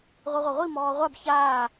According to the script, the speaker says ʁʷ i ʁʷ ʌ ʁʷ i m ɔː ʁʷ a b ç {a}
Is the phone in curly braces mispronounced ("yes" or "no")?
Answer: yes